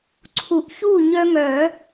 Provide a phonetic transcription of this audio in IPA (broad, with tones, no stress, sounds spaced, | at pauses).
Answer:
ǀʰ u˨˩˦ ʔ ç u˥˨ ɲ œ˦ ŋ œ˨˩˦